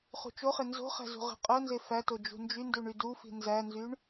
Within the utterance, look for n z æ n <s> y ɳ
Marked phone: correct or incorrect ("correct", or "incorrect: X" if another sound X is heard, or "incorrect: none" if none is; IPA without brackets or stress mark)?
incorrect: z